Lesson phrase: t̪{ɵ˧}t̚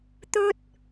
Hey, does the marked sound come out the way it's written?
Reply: no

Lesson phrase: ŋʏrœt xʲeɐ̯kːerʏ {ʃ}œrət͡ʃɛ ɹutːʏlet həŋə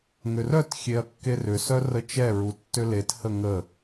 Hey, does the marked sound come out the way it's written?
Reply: no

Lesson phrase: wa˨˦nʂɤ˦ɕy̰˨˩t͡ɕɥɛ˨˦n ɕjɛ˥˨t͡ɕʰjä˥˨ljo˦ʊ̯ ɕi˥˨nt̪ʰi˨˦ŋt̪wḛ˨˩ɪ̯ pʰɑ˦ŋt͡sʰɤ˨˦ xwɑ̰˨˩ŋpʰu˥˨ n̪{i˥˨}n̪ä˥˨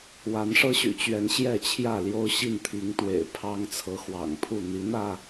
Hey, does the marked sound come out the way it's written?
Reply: no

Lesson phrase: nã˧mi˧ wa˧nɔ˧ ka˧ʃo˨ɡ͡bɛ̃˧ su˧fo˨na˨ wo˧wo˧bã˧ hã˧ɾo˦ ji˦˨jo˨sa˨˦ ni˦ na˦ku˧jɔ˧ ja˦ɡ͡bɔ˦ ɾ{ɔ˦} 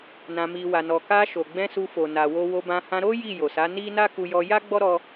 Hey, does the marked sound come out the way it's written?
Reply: yes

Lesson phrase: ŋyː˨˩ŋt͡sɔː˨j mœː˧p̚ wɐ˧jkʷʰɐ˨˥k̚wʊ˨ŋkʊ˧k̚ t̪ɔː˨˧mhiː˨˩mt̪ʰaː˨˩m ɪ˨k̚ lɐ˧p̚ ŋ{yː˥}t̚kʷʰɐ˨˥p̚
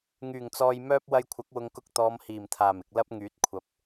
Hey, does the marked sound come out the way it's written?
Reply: no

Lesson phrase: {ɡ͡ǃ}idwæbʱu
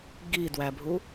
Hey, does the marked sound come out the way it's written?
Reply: no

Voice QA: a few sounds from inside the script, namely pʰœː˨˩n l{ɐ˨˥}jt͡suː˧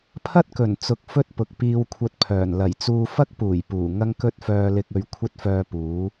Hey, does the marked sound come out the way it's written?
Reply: no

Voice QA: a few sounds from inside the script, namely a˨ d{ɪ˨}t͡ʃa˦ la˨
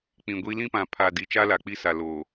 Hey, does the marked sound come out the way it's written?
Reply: no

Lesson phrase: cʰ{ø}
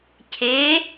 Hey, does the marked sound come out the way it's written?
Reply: no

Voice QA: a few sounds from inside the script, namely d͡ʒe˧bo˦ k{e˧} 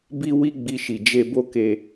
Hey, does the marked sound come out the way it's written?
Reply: yes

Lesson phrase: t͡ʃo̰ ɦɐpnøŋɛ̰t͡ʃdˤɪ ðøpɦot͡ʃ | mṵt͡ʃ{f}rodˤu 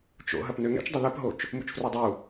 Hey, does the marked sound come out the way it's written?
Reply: yes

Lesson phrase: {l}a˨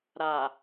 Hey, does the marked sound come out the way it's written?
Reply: no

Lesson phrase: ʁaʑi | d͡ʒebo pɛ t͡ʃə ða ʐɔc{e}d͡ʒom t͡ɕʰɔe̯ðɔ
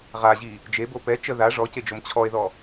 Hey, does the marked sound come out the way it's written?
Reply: yes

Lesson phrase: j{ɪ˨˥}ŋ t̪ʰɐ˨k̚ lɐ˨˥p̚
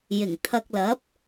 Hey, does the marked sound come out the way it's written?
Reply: no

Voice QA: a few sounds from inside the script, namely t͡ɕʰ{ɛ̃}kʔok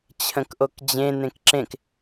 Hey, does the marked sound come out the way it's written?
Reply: no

